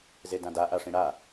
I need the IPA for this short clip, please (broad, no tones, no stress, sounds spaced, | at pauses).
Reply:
z e d ã d a ʔ a ʂ ĩ ɽ a